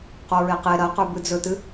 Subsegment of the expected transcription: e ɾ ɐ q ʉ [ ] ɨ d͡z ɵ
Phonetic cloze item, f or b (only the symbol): b